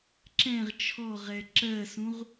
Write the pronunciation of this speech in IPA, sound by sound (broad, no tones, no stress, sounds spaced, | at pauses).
ǁ ɛ̃ ʁ t͡ʃʰ ɔ ʁ ɛ ǁ ɜ s ũ ʁ